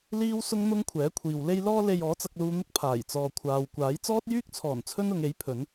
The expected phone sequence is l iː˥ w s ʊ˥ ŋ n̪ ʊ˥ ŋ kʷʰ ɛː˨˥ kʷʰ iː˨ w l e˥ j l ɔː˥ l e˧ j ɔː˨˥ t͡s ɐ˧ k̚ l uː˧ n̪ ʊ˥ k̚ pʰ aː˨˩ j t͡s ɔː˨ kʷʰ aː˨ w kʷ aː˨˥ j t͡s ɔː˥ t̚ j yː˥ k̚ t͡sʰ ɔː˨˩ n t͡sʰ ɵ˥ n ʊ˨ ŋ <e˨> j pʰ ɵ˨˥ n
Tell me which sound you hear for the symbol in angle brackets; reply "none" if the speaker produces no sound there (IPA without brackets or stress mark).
e˨˥